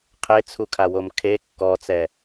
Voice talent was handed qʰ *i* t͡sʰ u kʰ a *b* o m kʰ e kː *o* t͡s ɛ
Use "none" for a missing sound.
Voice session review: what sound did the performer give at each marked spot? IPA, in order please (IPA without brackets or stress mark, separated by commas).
e, w, ɔ